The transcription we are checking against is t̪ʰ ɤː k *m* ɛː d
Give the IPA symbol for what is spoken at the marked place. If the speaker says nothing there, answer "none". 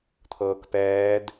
p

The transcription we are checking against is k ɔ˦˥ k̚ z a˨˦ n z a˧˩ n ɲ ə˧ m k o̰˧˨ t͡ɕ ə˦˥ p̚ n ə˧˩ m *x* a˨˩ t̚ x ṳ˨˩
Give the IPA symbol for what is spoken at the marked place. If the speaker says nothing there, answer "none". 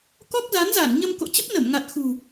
ŋ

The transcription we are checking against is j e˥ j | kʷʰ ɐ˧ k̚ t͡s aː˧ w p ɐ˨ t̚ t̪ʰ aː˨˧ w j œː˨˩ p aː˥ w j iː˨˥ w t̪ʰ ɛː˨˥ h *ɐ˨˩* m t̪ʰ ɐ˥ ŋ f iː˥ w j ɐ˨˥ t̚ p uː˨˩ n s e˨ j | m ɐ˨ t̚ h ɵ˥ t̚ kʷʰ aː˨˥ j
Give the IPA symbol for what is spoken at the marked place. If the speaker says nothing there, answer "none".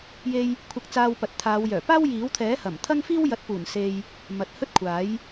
ɐ˨˩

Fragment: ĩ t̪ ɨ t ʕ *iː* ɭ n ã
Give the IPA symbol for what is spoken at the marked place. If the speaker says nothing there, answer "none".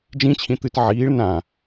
iː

